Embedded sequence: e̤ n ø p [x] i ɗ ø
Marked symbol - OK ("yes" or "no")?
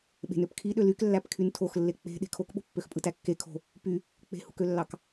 no